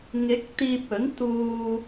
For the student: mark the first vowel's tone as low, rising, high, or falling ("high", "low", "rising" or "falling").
rising